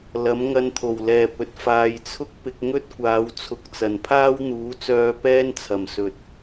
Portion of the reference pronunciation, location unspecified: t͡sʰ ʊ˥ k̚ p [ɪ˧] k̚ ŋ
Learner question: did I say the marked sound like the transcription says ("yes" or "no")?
yes